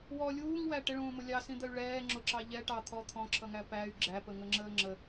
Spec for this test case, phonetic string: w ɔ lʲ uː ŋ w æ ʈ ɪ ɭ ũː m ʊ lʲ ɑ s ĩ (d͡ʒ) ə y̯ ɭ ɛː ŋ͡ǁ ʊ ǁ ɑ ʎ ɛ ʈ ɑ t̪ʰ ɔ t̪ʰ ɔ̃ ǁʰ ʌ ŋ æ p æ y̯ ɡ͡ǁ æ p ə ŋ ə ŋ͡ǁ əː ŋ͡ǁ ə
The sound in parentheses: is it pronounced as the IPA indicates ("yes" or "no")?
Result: no